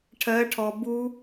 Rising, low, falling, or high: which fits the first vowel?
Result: rising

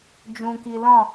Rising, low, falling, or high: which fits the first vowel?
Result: high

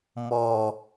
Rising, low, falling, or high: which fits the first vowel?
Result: low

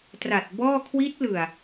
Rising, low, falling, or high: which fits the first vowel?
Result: low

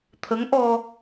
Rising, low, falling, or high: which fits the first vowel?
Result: rising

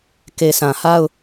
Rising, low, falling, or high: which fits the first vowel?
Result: low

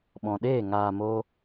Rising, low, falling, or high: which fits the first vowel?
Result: low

